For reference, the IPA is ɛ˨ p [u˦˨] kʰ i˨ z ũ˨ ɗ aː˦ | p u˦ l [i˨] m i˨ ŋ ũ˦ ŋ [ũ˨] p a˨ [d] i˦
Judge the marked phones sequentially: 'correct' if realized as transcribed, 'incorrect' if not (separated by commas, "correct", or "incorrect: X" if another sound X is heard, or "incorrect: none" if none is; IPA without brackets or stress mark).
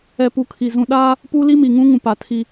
incorrect: u˨, incorrect: i˦, correct, incorrect: tʰ